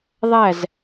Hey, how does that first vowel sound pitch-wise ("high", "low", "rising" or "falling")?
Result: falling